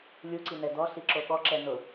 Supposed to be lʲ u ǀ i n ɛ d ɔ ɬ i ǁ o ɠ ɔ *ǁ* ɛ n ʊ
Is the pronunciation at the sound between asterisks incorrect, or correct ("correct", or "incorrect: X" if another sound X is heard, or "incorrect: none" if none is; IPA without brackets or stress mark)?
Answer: correct